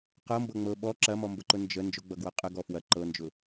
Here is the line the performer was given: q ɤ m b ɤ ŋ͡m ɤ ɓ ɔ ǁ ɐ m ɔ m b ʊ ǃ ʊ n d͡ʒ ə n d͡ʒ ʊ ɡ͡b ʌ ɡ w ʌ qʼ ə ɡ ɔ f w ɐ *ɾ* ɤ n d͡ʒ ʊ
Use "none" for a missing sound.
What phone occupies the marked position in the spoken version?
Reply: ǃ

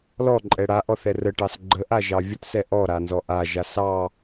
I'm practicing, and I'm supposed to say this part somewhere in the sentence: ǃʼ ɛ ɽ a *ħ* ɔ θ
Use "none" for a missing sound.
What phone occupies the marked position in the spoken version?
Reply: ʔ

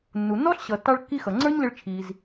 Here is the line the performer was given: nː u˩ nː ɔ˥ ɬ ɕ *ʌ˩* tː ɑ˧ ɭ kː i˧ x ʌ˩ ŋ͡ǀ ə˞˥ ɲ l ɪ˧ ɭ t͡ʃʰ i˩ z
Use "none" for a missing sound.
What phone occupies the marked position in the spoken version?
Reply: ʌ˩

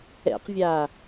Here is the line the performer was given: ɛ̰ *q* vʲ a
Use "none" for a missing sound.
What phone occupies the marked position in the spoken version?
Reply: q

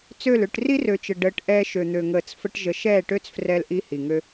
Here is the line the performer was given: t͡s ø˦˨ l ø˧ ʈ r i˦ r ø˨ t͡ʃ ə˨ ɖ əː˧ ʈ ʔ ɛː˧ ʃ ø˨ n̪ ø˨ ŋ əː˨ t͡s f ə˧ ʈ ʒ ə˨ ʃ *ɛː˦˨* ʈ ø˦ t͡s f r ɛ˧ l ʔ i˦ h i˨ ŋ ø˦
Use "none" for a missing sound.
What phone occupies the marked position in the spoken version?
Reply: ɛː˦˨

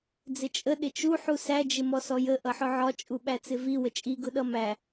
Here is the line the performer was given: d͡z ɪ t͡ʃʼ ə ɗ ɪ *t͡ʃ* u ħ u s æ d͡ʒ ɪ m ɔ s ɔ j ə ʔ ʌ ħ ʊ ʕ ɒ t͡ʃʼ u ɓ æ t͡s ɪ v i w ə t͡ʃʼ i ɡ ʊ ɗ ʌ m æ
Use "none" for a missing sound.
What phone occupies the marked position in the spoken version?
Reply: t͡ʃ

